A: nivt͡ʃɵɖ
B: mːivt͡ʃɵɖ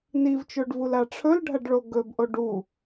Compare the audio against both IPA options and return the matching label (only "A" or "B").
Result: A